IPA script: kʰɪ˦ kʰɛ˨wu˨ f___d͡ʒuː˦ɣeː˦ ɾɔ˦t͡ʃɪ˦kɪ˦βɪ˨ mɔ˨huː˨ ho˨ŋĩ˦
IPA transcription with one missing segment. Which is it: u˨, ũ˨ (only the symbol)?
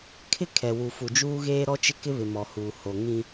u˨